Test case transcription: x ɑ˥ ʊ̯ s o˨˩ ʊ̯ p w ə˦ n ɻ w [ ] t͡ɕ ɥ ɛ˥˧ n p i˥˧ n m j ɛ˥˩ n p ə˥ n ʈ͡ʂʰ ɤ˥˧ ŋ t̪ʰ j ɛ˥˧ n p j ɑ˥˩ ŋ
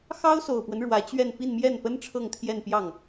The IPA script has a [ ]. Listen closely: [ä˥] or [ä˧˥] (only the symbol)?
ä˧˥